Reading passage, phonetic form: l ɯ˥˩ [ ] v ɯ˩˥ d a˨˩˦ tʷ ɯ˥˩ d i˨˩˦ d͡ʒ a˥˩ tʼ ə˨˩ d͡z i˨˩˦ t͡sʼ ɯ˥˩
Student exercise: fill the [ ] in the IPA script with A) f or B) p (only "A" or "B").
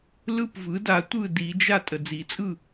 B